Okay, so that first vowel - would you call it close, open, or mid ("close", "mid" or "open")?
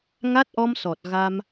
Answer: open